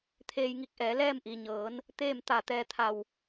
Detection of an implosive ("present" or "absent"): absent